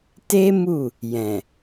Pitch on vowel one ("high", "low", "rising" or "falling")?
high